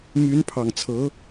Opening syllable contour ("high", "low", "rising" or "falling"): rising